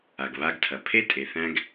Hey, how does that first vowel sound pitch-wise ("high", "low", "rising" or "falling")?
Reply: low